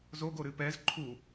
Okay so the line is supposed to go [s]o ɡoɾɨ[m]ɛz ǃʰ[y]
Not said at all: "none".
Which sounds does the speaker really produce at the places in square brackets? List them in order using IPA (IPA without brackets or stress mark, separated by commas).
z, p, u